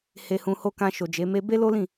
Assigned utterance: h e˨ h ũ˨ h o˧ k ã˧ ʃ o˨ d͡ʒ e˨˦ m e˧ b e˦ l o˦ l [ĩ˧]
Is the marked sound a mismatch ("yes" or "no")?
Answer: yes